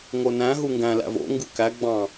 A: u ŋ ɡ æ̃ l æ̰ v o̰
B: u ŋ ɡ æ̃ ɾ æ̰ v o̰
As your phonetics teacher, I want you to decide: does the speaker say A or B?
A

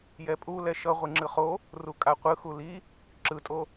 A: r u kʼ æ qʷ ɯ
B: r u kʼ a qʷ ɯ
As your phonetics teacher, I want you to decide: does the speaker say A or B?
B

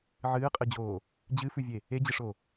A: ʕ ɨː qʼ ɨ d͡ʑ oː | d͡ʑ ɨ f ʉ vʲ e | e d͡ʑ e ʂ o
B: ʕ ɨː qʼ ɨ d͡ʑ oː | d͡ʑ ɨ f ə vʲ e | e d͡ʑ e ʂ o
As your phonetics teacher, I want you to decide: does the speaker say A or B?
A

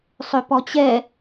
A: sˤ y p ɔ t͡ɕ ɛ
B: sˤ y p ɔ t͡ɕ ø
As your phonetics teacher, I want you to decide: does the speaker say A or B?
A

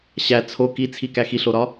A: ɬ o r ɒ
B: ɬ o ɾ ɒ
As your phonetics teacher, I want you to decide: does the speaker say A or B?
B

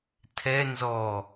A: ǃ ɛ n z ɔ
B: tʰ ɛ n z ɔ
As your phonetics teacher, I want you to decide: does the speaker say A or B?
B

